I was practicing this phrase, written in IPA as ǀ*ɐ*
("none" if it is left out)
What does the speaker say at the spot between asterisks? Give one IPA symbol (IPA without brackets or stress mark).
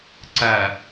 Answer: ɐ